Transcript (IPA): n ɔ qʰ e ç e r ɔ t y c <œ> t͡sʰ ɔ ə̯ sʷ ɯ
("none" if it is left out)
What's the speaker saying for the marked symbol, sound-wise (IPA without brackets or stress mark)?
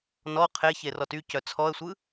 œ